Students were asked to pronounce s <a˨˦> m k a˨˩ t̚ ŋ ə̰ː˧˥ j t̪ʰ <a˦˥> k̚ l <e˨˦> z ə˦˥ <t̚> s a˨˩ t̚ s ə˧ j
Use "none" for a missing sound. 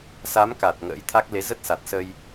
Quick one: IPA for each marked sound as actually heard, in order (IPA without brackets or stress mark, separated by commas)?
a˨˦, a˦˥, e˨˦, t̚